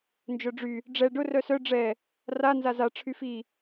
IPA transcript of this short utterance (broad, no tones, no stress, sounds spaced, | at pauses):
n d͡ʒ œ ɖ͡ʐ y | ɖ͡ʐ ɛ ɖ ʊ r œ s œ ɖ͡ʐ ɛ | r a n z a z a ʈ͡ʂʰ y f i